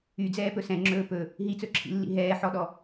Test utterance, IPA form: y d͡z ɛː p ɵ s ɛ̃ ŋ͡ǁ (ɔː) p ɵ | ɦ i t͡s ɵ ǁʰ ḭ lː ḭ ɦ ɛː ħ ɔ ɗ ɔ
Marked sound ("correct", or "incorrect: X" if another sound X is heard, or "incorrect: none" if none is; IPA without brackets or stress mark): incorrect: ɵː